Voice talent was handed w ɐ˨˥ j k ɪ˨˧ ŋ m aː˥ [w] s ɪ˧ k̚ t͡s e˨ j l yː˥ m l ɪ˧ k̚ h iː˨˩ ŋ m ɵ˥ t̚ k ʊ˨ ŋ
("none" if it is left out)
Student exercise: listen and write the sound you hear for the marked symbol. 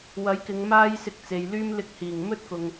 j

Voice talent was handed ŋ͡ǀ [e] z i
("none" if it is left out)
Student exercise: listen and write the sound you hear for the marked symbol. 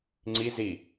i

